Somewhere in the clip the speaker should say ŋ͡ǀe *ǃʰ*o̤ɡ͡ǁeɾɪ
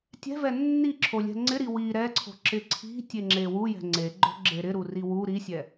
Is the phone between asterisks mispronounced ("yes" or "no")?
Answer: yes